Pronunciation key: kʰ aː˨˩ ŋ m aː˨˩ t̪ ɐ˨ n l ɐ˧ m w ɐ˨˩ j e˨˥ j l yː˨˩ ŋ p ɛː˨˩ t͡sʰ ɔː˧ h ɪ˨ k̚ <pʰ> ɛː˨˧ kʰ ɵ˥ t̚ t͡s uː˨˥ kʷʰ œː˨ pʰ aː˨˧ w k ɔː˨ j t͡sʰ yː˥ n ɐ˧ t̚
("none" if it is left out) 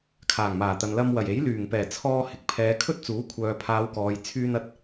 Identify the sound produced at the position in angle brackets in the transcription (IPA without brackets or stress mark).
pʰ